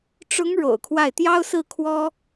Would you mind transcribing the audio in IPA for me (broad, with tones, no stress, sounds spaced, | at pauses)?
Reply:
ʈ͡ʂ ʊ˧˥ ŋ ɻ o̰˨˩ ʊ̯ kʰ w a˥˩ ɪ̯ t̪ j ɑ˥ ʊ̯ s ɹ̩˥˩ kʰ w ɔ˥